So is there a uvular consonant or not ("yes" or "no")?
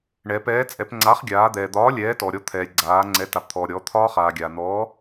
yes